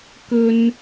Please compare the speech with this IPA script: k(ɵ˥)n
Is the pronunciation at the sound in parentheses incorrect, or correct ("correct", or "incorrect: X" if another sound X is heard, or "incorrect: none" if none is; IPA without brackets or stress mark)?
correct